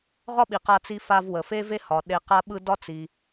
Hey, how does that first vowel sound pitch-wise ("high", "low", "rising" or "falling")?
high